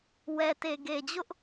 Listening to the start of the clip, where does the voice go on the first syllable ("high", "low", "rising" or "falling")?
low